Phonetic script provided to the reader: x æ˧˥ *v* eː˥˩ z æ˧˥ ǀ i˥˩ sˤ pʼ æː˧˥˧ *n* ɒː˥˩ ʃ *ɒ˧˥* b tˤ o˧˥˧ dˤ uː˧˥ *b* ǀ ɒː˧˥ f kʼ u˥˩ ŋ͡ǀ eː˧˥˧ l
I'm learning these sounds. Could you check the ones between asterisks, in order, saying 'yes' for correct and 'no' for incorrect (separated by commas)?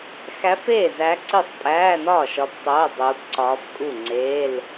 no, yes, yes, yes